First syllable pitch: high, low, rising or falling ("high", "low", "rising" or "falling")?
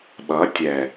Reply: rising